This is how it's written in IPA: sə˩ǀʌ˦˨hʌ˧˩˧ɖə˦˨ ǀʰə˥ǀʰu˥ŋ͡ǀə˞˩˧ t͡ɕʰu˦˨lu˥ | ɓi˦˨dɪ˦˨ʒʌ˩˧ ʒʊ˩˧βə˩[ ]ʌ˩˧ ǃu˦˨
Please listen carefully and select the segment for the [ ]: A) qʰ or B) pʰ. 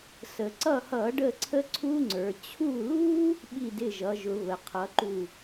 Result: A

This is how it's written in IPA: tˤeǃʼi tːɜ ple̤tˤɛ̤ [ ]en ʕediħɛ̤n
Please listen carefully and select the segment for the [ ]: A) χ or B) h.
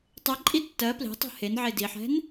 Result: B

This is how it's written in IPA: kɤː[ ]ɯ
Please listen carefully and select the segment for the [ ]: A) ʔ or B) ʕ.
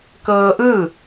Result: A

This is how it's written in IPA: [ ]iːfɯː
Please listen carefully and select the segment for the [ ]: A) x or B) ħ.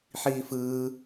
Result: B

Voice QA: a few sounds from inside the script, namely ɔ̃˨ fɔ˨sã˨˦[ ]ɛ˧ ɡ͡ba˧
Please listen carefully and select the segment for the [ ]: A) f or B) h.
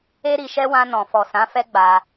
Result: A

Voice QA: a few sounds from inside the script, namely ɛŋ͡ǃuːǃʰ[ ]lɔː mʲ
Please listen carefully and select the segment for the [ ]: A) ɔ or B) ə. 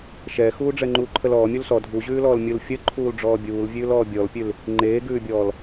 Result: B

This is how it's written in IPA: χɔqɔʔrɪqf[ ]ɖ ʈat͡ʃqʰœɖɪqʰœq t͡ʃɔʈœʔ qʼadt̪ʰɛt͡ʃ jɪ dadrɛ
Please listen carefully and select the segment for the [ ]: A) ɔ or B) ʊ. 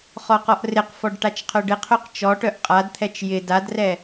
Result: A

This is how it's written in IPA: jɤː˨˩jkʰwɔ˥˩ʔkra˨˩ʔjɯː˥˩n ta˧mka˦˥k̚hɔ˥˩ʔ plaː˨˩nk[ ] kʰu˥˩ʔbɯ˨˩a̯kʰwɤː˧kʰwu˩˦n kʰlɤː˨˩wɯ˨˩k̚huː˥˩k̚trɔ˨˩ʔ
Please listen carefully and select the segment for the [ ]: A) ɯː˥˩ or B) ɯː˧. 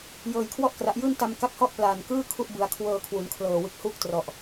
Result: A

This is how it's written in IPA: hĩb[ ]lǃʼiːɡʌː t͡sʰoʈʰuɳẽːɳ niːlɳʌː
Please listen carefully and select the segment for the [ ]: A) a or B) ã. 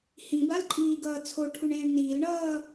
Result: A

